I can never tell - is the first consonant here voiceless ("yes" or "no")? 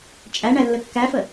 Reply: yes